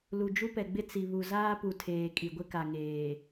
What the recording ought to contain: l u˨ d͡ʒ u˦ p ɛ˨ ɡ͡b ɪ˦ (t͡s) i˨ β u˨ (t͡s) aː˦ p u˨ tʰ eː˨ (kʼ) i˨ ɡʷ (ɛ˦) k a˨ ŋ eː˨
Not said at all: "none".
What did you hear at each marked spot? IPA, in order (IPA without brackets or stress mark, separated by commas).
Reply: t͡s, z, kʼ, ɪ˦